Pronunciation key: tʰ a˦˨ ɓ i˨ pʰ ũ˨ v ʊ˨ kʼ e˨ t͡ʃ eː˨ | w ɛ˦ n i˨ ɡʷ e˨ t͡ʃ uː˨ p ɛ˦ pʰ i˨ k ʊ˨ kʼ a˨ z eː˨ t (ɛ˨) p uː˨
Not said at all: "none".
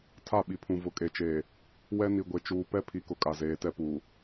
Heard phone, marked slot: ɛ˦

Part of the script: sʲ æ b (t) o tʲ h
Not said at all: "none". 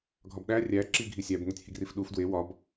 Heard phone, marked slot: n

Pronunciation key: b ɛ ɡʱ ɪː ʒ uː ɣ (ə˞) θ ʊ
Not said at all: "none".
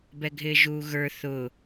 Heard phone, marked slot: ə˞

